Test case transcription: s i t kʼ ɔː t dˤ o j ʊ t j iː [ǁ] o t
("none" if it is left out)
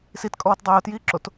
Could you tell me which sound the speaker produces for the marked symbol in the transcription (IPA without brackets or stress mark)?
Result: ǁ